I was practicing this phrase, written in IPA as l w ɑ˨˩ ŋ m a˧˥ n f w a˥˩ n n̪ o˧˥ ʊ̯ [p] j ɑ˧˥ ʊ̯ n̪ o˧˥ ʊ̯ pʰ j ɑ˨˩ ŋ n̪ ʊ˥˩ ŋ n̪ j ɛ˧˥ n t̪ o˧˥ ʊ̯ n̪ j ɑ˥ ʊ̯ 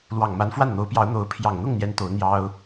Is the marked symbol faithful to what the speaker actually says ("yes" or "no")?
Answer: yes